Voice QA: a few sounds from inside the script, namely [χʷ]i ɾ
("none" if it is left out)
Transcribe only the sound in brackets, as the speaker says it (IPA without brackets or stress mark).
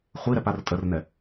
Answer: χʷ